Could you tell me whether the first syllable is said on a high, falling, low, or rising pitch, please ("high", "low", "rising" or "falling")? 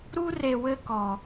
high